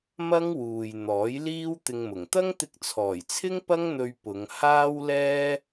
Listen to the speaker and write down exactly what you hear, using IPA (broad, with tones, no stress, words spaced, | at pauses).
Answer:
mɐ˥ŋwuː˨j n̪ɔː˨˥jliː˥w t̪ɪ˧ŋmʊ˨˩ŋ t̪ɐ˥ŋt̪ɪ˧k̚t͡sʰɔː˨˩jt͡sʰɪ˥ŋ pɐ˥ŋn̪ɵ˧ɥ pʊ˨˧ŋhaː˥wlɛː˥